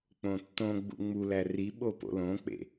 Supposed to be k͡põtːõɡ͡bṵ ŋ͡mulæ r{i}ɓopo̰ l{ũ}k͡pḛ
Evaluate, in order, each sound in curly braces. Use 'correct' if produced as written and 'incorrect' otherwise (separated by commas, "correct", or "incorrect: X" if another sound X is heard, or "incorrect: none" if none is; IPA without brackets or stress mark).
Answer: correct, incorrect: õ